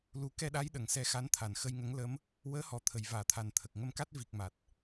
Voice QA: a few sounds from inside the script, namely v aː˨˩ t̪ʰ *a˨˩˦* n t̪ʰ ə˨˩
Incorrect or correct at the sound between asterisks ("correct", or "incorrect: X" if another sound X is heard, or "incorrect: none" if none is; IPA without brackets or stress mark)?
incorrect: a˨˩